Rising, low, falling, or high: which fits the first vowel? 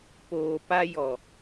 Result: low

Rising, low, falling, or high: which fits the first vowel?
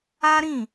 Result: high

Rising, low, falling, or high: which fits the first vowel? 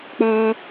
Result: high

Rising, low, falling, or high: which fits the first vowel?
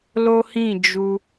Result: high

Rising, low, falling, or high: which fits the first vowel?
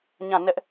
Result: falling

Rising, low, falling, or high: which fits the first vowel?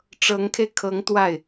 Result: rising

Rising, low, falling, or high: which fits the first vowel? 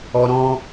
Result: high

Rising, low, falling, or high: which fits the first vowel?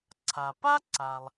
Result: low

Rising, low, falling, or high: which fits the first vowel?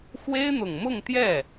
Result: high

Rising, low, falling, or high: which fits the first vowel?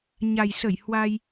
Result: low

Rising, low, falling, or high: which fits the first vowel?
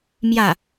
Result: falling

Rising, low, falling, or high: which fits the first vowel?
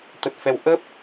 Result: low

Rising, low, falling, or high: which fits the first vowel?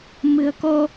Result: low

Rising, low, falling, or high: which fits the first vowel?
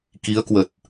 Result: rising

